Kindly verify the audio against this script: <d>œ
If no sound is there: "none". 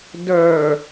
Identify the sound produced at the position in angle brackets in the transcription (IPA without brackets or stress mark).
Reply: d